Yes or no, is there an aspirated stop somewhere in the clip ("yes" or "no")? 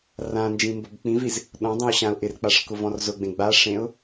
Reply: no